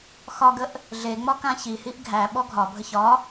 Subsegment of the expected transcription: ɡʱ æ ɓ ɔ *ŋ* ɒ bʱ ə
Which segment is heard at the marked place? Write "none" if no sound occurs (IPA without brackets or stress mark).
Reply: ɡʱ